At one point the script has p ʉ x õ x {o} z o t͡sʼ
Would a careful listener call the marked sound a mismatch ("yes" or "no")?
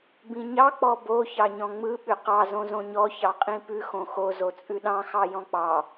no